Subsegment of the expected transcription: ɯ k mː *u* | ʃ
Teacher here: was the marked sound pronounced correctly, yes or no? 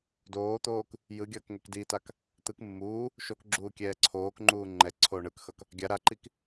no